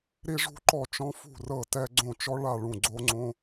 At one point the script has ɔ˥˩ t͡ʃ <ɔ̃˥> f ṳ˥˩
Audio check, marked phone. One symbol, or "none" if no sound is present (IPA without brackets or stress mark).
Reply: ɔ̃˥